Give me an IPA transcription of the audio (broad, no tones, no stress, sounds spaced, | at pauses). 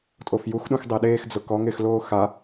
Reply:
tʼ o f j u x ɗ ũ x dˤ e ɗ eː x d͡z ʊ k ɔ ŋ ɪ x l oː x a